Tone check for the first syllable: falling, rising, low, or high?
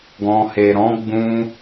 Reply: low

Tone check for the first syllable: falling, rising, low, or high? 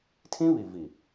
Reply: high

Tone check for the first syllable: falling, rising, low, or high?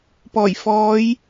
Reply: low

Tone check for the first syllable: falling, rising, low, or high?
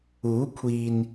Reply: rising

